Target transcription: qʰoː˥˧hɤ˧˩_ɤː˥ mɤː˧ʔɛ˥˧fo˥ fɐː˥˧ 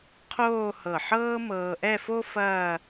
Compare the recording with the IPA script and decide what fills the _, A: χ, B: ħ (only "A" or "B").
B